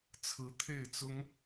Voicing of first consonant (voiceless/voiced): voiceless